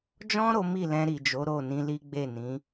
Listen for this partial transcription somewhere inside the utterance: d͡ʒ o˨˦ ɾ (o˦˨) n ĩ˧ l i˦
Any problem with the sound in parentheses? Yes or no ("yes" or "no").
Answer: no